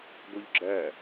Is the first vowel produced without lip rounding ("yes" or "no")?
no